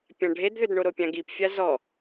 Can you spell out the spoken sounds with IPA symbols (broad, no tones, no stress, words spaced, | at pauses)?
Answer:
pʲãɖʱedðʏdɳo ɾopʲãɡipfʲa zɔ